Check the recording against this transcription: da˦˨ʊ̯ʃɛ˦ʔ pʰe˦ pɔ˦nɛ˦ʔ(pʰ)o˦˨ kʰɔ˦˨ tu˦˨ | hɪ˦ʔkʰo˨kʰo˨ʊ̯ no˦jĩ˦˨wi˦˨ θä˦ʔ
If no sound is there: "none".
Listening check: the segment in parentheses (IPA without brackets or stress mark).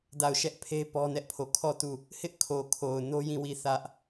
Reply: pʰ